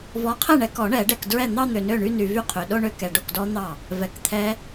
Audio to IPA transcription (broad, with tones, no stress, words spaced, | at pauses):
vɔ˨˦qʰɛ˥˩ɳɛ˨˩˦kɔ˨˩˦ ɳɛ˨˩˦ɖɛ˨kdɹɛ˥˩n̪ɑ˥˧ n̪ø˨nø˥˩ɳy˥˧ny˨ vy˥˩qʰø˨ ɗo˥˧ɳø˦˥ kɛ˨ɖo˥˩kdɔ˦˥n̪ɑ˥˩ | vɛ˨˩˦kt̪ʰɛ˦˥